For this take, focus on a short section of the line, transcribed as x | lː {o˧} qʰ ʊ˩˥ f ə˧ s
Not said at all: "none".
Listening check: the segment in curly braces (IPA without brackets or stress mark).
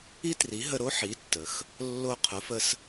o˧